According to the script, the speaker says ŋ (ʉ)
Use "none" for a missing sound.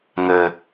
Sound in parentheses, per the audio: ɘ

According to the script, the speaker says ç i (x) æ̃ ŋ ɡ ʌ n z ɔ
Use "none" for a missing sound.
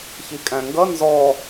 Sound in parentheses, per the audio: kʼ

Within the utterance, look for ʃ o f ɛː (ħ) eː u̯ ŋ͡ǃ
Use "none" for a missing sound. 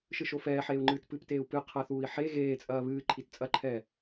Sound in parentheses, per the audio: ħ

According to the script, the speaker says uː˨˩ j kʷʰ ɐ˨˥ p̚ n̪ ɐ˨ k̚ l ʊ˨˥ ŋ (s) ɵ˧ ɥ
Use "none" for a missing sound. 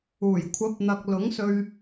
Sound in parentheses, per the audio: s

